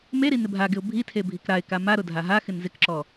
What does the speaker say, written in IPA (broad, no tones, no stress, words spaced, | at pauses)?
meɾi nɪbʱaɡɪʊ̯ bʱitʰe bʱikɾaɪ̯ka maɾʊ dʱaɦaxɪn zɪkǁɔ